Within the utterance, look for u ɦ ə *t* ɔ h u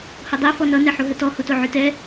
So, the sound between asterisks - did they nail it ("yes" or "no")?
yes